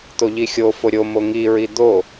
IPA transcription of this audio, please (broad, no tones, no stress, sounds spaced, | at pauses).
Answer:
t̪ o ʎ i xʲ o f o ɾʲ o m o ŋ i ɹ i d̪ o